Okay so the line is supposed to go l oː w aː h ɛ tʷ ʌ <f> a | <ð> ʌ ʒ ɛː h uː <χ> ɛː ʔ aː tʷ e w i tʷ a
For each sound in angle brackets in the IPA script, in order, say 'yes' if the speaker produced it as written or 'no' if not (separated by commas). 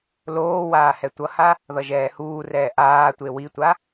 no, yes, no